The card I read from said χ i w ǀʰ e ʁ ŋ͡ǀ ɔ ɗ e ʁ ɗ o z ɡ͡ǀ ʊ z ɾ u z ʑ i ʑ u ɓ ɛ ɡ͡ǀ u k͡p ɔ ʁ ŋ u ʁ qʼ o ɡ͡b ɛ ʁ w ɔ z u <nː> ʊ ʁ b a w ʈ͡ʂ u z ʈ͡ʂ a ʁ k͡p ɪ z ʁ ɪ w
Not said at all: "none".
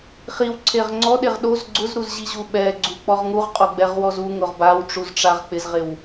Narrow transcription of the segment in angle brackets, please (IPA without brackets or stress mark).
ŋ